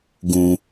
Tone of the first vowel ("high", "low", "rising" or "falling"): low